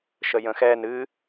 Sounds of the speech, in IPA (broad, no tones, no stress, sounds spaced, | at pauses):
ʃ ə j ə̃ x ɛ n ɨ